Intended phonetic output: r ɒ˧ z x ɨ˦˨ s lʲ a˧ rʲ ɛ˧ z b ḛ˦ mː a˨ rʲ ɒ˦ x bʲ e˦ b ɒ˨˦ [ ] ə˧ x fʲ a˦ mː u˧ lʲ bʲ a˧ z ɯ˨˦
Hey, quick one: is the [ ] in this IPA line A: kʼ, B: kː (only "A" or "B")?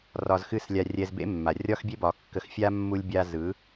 B